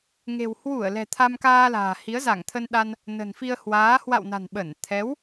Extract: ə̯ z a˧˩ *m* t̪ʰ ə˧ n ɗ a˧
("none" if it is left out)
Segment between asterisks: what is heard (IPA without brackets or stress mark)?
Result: ŋ